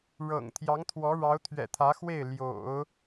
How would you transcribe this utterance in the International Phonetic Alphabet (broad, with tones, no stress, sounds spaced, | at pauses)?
ɻ ɤ̰˨˩ ŋ t̪ʰ j ɑ˧˥ ŋ t̪ʰ w ɔ˧˥ ɻ ɑ˧˥ ʊ̯ t̪ʰ ɥ ɛ̰˨˩ t̪ʰ ä˧˥ x w e˥˩ ɪ̯ l j o̰˨˩˦ ʊ̯